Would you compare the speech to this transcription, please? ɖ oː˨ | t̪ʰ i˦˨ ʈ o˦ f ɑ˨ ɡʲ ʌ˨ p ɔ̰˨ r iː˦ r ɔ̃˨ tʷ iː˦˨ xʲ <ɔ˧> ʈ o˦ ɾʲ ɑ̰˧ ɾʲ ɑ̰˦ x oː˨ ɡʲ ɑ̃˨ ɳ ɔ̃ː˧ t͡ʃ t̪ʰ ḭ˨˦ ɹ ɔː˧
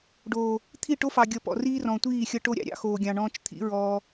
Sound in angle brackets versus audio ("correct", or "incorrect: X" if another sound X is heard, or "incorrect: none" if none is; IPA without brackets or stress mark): incorrect: ʌ˧